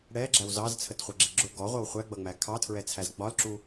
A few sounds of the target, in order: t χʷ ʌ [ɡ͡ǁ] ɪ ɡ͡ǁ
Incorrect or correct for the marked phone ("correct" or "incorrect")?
correct